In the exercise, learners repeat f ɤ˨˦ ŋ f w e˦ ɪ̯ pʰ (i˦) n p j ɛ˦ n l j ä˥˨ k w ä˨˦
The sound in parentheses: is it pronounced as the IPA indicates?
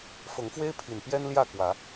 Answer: no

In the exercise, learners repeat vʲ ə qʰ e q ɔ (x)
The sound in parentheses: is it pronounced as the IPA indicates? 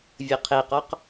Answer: no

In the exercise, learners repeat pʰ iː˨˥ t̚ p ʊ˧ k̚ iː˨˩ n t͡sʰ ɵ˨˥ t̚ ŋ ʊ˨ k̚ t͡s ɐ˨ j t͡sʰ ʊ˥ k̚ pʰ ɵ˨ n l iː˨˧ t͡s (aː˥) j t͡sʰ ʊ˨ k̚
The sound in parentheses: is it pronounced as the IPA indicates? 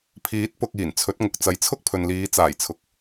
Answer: no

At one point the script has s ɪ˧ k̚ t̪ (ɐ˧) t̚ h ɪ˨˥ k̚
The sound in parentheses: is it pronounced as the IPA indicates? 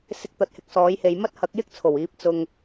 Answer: no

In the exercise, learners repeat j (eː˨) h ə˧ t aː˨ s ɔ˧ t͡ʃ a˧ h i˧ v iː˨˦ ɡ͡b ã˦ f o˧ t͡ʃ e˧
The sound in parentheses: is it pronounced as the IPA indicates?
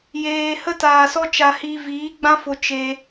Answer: yes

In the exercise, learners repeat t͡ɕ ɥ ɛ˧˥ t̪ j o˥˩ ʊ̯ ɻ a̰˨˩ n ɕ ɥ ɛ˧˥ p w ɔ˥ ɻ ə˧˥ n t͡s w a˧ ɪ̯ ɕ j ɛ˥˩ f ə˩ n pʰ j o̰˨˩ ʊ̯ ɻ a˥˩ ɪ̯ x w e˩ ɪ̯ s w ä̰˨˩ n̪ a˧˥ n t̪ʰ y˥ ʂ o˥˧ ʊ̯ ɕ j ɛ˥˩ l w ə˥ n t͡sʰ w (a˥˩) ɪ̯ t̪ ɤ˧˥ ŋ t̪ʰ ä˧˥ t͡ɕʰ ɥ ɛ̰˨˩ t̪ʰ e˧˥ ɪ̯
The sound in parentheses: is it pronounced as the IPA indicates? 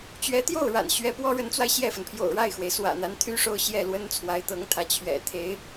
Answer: no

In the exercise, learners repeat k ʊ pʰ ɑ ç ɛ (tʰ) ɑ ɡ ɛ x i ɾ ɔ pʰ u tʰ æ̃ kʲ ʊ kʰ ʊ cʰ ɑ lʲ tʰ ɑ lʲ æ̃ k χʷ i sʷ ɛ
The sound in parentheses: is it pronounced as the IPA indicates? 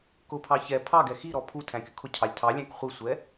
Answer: no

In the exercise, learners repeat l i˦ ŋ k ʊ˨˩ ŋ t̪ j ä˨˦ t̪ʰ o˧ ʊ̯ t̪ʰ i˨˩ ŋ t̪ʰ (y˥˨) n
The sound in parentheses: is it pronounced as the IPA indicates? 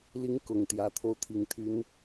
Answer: no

